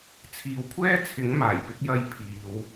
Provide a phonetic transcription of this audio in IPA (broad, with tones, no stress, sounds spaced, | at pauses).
t͡sʰ iː˨ w kʷʰ ɛː˥ t͡sʰ ɪ˨˥ ŋ m aː˨˩ j p ɪ˥ k̚ j ɐ˥ j pʰ iː˨˧ w